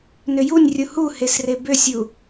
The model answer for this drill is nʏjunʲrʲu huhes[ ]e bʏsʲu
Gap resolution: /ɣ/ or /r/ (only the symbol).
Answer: r